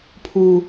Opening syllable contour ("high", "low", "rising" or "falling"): high